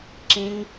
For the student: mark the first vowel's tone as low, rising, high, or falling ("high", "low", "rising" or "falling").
high